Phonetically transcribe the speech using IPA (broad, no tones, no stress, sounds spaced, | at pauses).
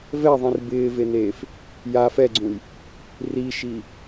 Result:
v ɛ ðˤ ĩ r b ɪː v e n eː f | j a f ɛ ɡ͡ǀ ũ j | r i ʃ i